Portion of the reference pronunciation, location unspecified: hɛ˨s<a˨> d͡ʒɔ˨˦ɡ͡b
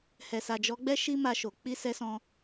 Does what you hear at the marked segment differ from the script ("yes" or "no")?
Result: no